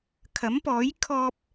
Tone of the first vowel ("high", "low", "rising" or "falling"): rising